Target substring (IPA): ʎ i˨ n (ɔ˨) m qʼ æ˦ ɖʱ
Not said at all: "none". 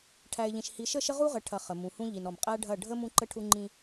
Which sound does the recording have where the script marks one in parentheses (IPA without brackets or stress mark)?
ɔ˨